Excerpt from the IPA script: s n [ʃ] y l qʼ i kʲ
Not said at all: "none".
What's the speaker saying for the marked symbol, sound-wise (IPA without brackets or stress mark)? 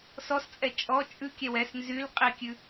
z